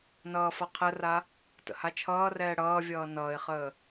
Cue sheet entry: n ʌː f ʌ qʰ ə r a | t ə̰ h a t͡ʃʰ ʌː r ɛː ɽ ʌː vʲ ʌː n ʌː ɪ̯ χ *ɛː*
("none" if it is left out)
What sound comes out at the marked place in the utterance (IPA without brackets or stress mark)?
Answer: əː